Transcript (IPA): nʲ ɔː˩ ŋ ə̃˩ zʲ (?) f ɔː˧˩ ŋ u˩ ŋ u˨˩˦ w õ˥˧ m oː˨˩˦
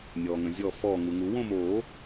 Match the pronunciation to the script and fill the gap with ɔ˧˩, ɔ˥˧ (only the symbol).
ɔ˧˩